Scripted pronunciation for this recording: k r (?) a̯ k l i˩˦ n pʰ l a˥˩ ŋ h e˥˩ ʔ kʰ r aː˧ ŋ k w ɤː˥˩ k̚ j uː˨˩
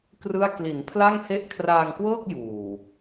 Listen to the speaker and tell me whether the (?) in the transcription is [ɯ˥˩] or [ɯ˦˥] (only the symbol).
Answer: ɯ˥˩